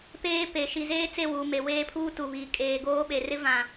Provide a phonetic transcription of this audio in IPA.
peː˦ pe˨ ʃi˨zeː˦ t͡se˦˨wuː˨me˨ weː˦pʰuː˦tu˨βiː˨ kʼeː˨ɡoː˦ɓe˨ rɪ˦ vã˨

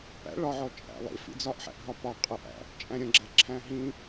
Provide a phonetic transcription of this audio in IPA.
pæ̰ ɭɒʕɔ t͡ʃʼæ̰lˠḭfḭ d͡zɒʔħæ̰ʔɦɒ pɒ qʼəʔæ̰ | t͡ʃʼæ̃ɾʲə̃ɡ͡ǁæ ǁʰæ̃ɦĩ

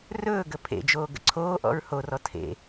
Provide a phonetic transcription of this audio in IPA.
rɵːɡə pʰḛd͡ʒoːɡə̰ ǀʰoːʔɔ̰ɹ horɔ tʰḛ

